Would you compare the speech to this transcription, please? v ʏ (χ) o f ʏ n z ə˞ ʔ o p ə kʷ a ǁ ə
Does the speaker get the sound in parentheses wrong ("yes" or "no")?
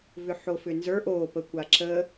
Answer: yes